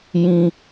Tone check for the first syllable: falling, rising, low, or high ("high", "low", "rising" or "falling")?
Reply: high